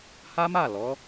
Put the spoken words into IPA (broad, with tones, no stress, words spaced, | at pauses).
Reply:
ha˦ma˦˨lɔ˨˦